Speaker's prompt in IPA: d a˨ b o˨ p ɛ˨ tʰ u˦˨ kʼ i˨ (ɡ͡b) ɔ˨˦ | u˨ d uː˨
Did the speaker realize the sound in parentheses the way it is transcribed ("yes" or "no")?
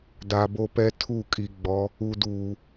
yes